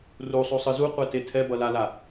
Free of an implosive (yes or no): yes